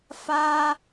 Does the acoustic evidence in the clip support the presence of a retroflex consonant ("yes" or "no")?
no